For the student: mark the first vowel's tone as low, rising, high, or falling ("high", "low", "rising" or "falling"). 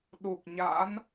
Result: low